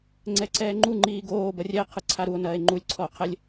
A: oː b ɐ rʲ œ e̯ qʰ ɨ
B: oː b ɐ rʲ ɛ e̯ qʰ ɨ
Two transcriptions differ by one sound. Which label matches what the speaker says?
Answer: B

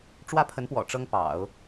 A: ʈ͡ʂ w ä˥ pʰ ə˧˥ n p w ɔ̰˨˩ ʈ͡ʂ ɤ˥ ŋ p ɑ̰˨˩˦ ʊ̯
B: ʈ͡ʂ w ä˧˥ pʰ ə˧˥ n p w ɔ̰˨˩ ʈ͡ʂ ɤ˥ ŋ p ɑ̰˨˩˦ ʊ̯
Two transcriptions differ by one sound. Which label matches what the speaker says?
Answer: A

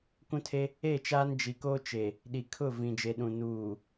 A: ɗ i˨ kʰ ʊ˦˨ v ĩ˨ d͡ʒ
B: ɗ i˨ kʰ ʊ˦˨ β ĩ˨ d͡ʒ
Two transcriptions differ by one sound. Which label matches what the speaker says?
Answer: A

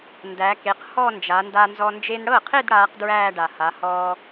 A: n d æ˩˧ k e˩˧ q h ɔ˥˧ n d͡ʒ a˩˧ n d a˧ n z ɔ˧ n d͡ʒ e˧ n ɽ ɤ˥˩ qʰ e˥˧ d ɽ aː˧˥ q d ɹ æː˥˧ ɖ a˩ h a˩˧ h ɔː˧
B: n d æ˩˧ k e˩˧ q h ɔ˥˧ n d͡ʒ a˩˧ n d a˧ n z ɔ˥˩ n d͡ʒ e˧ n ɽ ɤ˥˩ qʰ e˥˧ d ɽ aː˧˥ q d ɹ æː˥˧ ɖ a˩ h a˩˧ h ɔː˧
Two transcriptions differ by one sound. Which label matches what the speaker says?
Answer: A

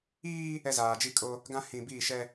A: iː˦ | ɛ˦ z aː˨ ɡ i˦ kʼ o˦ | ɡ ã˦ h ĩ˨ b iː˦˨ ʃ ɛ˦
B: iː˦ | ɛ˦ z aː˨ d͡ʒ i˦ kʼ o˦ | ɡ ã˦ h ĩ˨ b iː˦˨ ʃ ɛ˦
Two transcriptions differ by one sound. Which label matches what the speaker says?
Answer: B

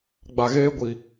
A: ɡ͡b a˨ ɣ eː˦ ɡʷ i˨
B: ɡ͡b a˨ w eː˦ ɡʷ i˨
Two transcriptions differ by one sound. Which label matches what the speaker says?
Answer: A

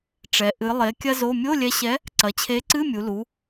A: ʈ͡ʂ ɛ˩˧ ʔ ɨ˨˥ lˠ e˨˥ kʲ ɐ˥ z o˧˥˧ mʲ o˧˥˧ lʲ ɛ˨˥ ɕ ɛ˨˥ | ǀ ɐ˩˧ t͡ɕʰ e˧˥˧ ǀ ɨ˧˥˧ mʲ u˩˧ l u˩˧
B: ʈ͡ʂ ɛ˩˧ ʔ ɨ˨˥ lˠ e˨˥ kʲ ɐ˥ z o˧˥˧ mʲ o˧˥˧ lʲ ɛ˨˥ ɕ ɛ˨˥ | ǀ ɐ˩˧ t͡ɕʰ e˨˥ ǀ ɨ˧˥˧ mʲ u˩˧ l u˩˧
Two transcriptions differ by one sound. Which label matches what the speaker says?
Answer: B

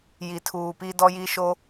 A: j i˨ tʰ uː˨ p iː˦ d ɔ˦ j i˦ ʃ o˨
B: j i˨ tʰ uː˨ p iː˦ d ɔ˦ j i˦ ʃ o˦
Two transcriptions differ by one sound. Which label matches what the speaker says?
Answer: B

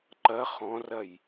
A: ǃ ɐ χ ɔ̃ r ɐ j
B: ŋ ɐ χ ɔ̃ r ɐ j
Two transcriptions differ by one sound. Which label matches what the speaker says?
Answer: A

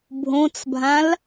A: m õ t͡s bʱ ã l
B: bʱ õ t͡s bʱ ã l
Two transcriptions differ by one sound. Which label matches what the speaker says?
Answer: B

